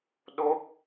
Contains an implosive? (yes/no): yes